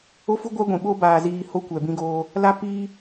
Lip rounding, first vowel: rounded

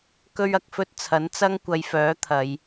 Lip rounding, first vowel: rounded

